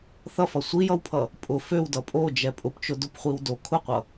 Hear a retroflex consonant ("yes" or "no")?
no